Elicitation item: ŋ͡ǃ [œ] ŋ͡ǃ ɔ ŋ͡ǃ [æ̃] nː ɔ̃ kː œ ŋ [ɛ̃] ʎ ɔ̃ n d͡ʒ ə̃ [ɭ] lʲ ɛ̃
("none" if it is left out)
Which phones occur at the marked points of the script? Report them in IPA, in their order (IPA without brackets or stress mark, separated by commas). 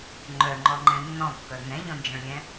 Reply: œ, ɛ̃, ɛ̃, ɭ